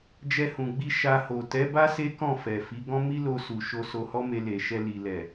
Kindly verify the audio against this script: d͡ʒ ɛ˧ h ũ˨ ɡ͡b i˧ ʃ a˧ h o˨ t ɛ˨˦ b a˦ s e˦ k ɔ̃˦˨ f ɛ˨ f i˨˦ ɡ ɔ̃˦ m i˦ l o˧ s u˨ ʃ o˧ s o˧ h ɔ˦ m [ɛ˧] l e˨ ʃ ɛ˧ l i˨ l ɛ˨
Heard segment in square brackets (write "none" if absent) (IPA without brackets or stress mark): e˧